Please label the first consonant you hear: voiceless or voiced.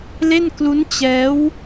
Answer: voiced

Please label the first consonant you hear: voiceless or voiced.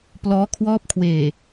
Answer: voiceless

